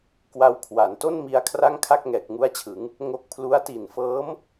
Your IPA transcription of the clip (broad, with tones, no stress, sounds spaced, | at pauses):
k w a˧ w kʰ w a˩˦ n t o˥˩ n m i˧ a̯ kʰ r a˥˩ ŋ kʰ a˥˩ k̚ ŋ ɛː˨˩ k̚ ŋ u˦˥ a̯ t͡ɕʰ ɯ˩˦ ŋ | ŋ o˦˥ k̚ pʰ l u˦˥ a̯ t i˨˩ n f ɤː˦˥ m